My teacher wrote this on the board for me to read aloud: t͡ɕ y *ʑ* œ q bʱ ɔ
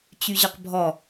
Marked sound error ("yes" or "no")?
no